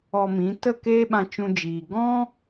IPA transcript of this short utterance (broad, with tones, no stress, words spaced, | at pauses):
ɔ˧mĩ˨˦ tə˦˨ keː˦ɓã˧t͡ʃũ˧d͡ʒiː˨ ɡɔ̃˦